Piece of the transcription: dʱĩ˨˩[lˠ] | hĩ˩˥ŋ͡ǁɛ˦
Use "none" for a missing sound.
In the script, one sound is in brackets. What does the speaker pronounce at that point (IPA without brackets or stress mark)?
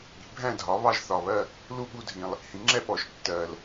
lˠ